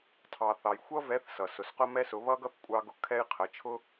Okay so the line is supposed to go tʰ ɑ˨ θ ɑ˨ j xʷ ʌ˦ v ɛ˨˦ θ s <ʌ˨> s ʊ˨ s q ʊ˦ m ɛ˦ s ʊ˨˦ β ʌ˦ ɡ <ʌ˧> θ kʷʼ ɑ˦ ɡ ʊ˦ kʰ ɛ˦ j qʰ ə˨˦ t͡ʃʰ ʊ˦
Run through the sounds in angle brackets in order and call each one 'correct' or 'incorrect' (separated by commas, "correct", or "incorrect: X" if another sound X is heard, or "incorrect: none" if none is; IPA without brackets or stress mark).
correct, incorrect: ʌ˦